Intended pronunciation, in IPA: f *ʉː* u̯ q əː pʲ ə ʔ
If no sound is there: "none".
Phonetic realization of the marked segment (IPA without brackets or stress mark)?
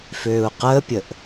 øː